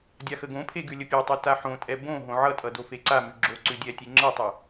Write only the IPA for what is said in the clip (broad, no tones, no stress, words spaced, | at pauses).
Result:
dʲaxəɡõpʰe ɡʉlʲəpʲɛtˤʉ taħõtʼɛ bõ ɦõʕʌtʼʌ dofeǀamʉ ɡ͡ǁo ǀʉdʲɛtʲe ŋ͡ǁʌtˤə